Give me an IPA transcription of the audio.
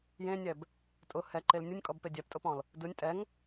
j ẽ nʲ ɛ b | tʼ ʊ h ɛ ǃ e l nʲ ɯ nʲ kʼ ɔ b p e dʲ ɛ p tʼ ʊ p ɔ̃ l | d ɯ nʲ tʼ ɛ ŋ

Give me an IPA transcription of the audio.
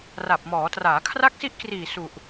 r a˨˩ p̚ m ɔː˩˦ t r aː˩˦ kʰ r a˦˥ k̚ s i˦˥ ʔ k r iː˨˩ s u˨˩ ʔ

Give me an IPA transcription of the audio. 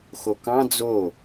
x o k ɑ̃ d͡z o

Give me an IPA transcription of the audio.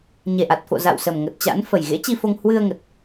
ɲ e˨˩ ʔ a˨˩ t̚ f o̰˧˨ z a̰˧˨ w s ə˨˩ m ŋ ə˨˩ t̚ t͡ɕ a̰˧˥ n f ə˨˩ j ɣ ḛ˧˥ t͡ɕ i˧ f o˧ ŋ h w ɨ˧ ə̯ ŋ ə˨˩ t̚

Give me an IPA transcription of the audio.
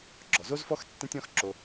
ɡ͡ǁ ɔ˨ z o˦ z f ɔ˦ x tː ẽ˦ tʲ ɔ̃˦ x ǁ o˧

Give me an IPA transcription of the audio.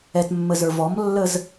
ɛ t mː ə z ə˞ v ɔ m lː ə z

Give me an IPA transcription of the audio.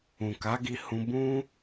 ũ˨ k a˨˦ ɡ i˧ h ũ˧ b ũ˦

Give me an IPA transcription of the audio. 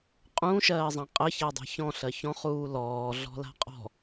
qʼ ũ ʃ ɜː zˤ ã qʼ ɜ ç a dˤ a̤ ç ɔ̃ ɬ ɜ ç ɔ̃ χ uː l ɔː ɮ ɔ̤ l a̤ qʼ ɔ̤

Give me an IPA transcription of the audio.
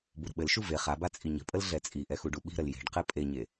b u ɾ ə̤ ɓ ɘ l ʃ u v e χ a b a t͡sʼ i ɲ ə̤ pʼ ə l ɮ ɛ t͡sʼ i ʔ ɛ x u ɖ u ɓ i̤ ɾ ə l j e̤ ɖ q ɛ pʼ e ɲ e

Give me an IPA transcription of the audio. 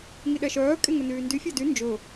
ŋ i ɗ ɛ ʃ œː kʼ e ŋ ɵ n yː n d y fʲ ɑ d y n d͡ʒ ɵ

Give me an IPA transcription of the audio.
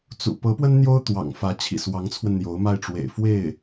t͡s ṵ˨˩ p ɤ˧˥ p w ə˥ n n̪ j o˥ ʊ̯ t̪ w ɑ̰˨˩ ŋ f ä˧˥ t͡ɕʰ ḭ˨˩ s w ɑ˧˥ ŋ t͡sʰ w ə˧ n n̪ j o˧˥ ʊ̯ m a˥˩ ɪ̯ ʈ͡ʂ w ḛ˨˩ ɪ̯ f w e˥˩ ɪ̯

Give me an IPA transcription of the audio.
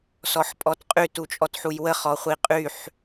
s ɔ ħ pʼ ɔ t qʼ y t u t͡ʃʼ ɔ t ħ u j w ə χ ɔ χʷ i qʼ y ħ

